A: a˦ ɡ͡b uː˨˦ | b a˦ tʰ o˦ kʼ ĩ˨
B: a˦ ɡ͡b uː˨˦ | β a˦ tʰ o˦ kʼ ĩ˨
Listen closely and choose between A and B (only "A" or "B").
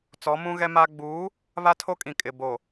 B